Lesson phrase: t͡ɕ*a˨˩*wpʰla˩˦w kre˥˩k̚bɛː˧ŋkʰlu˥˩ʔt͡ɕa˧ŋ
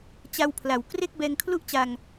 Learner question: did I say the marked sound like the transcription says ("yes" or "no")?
no